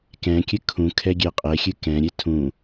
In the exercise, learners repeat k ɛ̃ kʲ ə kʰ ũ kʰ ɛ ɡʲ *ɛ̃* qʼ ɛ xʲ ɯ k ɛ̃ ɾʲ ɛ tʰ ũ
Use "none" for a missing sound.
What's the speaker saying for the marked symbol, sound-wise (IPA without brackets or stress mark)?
ɛ